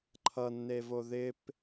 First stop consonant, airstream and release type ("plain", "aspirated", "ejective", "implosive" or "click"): click